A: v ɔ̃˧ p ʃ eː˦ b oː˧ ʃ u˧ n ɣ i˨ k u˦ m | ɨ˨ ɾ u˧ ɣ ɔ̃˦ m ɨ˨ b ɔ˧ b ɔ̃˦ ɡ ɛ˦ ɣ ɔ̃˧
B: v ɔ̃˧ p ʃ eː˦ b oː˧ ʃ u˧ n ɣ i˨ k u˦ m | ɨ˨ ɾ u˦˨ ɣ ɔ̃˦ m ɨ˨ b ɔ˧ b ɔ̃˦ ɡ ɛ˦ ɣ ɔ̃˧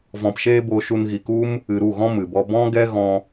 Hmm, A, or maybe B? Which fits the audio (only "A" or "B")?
B